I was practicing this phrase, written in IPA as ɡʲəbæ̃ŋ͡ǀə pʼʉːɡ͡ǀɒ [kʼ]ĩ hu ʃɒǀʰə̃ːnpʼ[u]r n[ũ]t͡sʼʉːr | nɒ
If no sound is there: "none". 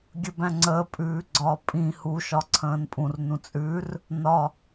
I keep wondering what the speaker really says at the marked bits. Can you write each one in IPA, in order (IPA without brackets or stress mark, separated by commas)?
pʼ, ũ, ũ